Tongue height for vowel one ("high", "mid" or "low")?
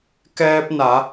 mid